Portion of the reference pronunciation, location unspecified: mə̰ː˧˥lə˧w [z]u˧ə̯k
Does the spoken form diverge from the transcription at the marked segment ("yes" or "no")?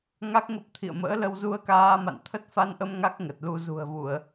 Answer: no